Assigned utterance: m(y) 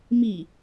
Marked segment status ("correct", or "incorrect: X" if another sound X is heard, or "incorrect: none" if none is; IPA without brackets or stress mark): incorrect: i